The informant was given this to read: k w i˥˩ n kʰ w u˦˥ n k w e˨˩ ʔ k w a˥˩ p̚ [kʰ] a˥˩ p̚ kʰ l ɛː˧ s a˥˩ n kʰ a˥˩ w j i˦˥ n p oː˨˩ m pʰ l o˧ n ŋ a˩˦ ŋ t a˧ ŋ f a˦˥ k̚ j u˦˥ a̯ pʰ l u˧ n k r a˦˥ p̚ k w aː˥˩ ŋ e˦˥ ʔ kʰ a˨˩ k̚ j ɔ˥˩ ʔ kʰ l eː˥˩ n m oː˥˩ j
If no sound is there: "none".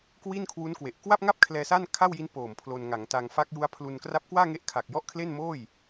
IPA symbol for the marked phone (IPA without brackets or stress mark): ŋ